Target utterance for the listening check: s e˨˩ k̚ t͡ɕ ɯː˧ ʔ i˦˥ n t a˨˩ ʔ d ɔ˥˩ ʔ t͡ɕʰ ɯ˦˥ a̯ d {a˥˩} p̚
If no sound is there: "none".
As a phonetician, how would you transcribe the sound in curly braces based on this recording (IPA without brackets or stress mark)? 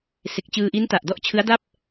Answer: a˥˩